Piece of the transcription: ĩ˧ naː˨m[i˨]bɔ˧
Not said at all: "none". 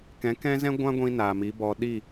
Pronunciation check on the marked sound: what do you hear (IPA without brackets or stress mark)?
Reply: i˨˦